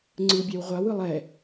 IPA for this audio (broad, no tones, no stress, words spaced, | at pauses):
ŋ͡ǀɯbʲaw ʁʷawɯlˠ ɛ